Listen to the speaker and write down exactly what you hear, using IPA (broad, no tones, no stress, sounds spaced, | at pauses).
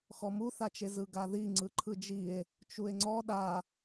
x ɔ m u θ a t͡ʃ e z ɯ ɡ a ð i ŋ͡ǀ ɯ ǃʰ ɯ d͡ʒ i e̯ | t͡ʃ u e̯ ŋ͡ǀ ɔ ɗ a